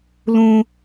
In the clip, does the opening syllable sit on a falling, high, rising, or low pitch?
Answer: high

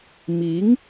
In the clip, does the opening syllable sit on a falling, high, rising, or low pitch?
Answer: rising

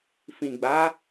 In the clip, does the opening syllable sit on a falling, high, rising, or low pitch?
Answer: low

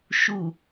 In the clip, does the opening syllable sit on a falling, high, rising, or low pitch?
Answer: low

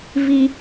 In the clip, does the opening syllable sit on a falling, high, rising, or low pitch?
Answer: low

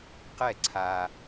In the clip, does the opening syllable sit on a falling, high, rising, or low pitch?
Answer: falling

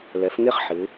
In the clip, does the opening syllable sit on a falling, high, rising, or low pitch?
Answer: rising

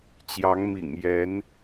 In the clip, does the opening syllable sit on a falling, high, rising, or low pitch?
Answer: rising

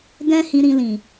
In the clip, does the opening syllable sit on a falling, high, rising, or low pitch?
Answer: high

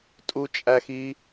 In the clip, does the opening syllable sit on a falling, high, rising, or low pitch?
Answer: high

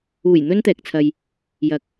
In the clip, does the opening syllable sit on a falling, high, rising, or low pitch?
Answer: low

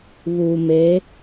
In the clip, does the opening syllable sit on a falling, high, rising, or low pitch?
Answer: low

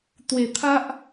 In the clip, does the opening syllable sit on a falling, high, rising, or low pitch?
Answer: low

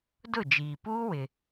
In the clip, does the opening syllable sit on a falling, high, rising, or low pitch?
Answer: falling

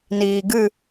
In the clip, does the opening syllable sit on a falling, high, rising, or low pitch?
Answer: low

